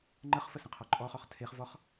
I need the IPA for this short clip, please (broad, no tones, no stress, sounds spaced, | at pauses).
ŋ͡ǃ ə χ f ə s ə̃ qʰ ɔ ǃʼ ɔ χ ɔ χ tʰ e χ v ɔ χ